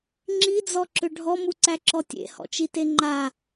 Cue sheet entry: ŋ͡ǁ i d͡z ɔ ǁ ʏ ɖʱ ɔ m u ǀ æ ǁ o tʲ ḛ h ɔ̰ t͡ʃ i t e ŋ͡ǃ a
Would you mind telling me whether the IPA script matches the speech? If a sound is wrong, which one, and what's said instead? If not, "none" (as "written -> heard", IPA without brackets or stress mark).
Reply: o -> ɔ